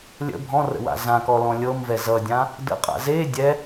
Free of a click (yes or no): yes